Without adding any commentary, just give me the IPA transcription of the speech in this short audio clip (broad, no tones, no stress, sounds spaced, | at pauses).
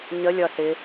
ɲ ə lʲ ʌ s ɪ